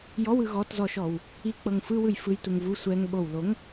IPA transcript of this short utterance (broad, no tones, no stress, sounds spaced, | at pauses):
j ɔ w ɯ ɣ ɔ t z ɔ ʃ ɔ w | i k͡p ɤ ŋ f ɯ w ɯ j f ɯ j t u ŋ v u sʷ ɛ ŋ ɓ o w l o ŋ